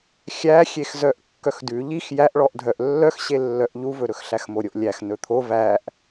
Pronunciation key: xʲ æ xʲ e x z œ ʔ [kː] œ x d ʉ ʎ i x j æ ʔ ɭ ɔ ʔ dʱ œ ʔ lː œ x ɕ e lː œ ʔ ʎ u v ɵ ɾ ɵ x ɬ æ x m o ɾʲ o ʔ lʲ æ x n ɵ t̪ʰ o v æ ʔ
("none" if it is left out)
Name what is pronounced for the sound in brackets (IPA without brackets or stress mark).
kː